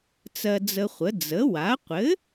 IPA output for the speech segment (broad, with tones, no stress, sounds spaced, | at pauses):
t͡s ɜ˧ d͡z ə˧ χʷ ə˩˥ d͡z ə˩˥ w a˩˥ qʷ ɘ˩˥